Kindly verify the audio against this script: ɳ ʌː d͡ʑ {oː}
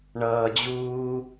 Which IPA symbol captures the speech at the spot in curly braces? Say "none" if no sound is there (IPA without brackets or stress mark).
uː